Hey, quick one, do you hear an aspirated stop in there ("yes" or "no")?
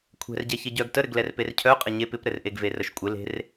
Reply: yes